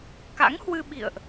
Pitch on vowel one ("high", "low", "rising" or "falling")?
rising